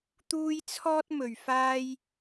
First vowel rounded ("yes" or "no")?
yes